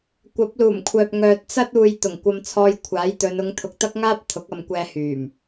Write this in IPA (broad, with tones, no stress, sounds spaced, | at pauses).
kʷ ɐ˨˥ p̚ l uː˨˩ m kʷʰ œː˨ p̚ ŋ œː˨ t̚ t͡s ɐ˥ t̚ uː˨ j t̪ ʊ˨˩ ŋ kʷ ɐ˧ m t͡sʰ ɔː˧ j kʷʰ aː˨˥ j t̪ ɵ˨˧ n ʊ˨˧ ŋ t̪ʰ ʊ˨ k̚ t̪ ɐ˥ k̚ ŋ aː˥ p̚ t̪ʰ ʊ˨˥ k̚ ɐ˨˧ m kʷ ɛː˧ h yː˨˩ m